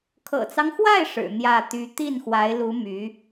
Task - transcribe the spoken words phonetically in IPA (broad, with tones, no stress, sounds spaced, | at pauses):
kʰ ɤ̰˨˩ t͡s ɑ˦ ŋ x w a˥˩ ɪ̯ ʂ ɻ̩˨˩ n̪ j ä˥˩ t̪ y˧˥ t̪ i˥˩ n x w a˧˥ ɪ̯ l u˧˥ m y˧˥